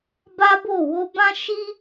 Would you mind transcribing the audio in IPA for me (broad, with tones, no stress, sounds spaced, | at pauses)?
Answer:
b a˦ b o˦˨ w o˧ b ã˦ ʃ i˦